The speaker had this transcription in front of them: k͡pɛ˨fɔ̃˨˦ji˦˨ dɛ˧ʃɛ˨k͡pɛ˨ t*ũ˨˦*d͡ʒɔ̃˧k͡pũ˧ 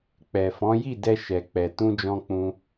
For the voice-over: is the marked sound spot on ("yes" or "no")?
no